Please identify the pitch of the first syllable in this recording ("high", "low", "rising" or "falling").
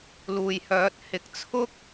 low